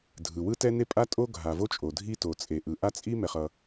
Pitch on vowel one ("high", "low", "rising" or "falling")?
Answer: low